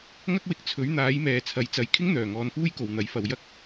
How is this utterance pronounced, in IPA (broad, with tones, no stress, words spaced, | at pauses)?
ŋɐ˥k̚wɪ˧k̚ t͡sʰɵ˨˥ɥn̪aː˨˥jmɛː˨ t͡sʰɐ˨˥jt͡sɐ˨˥j kʰɪ˥ŋn̪œː˨˩ ŋɔː˧nfuː˥jko˨w n̪ɐ˨˥jfɐ˨w jɐ˥k̚